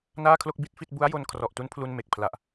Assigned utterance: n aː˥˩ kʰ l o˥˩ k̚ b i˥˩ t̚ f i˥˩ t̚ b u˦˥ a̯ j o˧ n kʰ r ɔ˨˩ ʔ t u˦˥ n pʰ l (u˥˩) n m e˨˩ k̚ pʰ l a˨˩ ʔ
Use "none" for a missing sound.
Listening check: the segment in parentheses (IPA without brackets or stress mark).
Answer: u˧